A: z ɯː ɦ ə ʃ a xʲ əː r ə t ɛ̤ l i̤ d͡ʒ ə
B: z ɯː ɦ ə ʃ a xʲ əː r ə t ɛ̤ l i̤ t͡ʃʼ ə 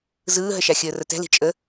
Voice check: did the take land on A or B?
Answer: B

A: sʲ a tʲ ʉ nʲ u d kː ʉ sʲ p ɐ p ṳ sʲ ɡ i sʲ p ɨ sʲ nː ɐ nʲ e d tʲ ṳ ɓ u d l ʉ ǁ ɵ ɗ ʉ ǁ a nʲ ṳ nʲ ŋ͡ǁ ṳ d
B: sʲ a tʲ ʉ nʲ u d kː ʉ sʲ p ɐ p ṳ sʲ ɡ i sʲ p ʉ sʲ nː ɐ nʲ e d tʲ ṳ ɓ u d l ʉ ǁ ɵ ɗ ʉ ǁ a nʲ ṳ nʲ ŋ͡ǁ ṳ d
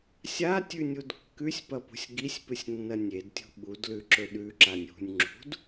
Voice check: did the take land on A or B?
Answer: A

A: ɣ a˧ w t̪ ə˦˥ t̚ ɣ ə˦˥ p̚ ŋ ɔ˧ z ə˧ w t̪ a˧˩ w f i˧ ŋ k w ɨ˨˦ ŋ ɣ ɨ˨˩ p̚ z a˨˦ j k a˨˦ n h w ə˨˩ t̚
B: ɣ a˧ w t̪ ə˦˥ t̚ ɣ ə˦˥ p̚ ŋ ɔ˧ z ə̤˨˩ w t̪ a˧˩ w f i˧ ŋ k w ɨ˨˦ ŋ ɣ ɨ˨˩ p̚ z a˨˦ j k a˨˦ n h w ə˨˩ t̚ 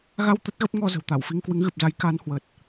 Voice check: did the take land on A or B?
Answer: B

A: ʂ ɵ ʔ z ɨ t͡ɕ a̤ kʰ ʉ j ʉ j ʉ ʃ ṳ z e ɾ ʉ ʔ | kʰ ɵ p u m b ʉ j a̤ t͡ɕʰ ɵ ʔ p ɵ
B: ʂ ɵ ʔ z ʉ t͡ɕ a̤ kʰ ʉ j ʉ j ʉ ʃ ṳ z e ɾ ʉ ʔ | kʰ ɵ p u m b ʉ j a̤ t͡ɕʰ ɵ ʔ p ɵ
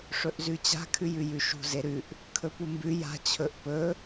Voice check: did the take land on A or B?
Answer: B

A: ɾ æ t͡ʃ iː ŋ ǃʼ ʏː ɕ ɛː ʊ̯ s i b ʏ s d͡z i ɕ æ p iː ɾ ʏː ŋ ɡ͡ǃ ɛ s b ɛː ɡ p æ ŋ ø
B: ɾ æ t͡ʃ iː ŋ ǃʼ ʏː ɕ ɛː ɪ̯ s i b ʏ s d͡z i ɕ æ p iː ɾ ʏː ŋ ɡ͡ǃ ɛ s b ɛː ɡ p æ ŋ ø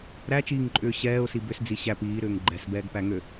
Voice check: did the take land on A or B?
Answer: A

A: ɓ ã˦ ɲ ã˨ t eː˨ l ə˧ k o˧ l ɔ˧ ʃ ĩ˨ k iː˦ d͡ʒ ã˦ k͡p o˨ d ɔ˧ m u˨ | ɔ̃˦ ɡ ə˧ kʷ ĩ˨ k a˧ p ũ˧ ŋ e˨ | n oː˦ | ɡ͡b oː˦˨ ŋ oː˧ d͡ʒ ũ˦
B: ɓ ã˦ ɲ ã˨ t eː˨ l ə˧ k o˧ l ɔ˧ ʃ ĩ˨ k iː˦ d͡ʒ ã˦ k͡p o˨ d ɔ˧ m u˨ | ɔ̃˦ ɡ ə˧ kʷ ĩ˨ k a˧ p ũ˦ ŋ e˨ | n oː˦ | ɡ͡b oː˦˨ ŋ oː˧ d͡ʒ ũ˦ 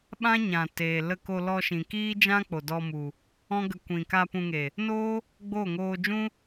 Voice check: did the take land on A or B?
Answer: A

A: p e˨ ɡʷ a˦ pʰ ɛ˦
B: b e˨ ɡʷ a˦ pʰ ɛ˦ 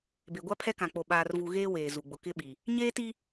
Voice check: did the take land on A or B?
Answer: B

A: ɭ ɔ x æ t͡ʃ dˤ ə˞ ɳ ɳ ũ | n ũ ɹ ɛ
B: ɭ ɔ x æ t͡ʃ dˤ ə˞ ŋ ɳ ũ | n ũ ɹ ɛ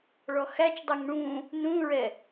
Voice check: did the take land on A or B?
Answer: B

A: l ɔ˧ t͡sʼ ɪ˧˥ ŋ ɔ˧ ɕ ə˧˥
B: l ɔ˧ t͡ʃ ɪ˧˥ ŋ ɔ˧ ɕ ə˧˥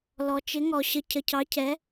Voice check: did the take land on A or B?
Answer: B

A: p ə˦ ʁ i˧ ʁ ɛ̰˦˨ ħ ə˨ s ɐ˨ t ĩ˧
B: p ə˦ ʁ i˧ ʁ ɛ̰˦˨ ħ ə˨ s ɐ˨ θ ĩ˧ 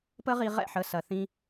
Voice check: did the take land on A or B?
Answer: B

